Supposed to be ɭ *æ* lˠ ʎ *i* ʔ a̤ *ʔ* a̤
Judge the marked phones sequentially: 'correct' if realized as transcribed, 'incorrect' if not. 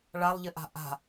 incorrect: a, incorrect: ɪ, correct

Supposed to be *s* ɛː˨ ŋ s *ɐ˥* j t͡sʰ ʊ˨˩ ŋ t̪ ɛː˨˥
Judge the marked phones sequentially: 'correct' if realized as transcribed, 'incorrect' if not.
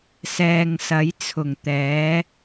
correct, incorrect: ɐ˨˥

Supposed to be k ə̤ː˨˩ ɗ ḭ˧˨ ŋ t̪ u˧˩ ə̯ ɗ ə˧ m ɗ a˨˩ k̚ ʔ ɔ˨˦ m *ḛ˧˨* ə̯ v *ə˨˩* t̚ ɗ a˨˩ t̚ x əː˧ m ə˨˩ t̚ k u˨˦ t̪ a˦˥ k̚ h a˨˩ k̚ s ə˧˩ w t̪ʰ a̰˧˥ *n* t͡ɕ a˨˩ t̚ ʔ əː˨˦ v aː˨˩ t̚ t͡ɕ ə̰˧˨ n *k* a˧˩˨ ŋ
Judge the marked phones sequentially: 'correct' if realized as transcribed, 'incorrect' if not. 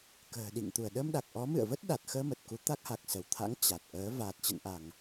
incorrect: ɨ̰˧˨, incorrect: ə˦˥, incorrect: ŋ, incorrect: ʔ

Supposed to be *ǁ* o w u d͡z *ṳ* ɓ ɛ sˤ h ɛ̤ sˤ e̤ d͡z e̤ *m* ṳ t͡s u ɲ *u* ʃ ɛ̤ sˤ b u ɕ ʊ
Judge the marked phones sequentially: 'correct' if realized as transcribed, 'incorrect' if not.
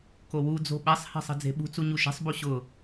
incorrect: k, incorrect: o̤, incorrect: ɓ, correct

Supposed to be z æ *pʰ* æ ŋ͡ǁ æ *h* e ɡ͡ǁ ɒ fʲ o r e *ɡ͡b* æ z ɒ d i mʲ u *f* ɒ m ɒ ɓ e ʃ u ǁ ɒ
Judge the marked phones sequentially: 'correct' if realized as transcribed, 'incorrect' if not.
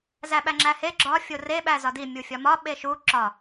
incorrect: ɓ, correct, incorrect: ɓ, incorrect: fʲ

